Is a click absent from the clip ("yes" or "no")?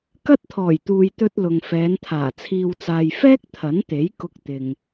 yes